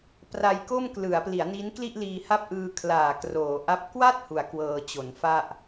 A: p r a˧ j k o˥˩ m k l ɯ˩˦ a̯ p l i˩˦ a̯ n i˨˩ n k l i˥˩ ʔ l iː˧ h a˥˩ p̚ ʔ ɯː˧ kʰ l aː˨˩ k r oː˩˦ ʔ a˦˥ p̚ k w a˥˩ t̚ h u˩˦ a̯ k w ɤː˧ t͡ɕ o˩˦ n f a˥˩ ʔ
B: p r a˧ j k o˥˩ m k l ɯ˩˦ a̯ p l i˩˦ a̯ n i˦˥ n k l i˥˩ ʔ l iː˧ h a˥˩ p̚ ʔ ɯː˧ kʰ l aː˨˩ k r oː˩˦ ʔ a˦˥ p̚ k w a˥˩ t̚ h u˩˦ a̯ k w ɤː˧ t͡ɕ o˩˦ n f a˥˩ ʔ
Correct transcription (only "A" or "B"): B